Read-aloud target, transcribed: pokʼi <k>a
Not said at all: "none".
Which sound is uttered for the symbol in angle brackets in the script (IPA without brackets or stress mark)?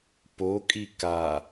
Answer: k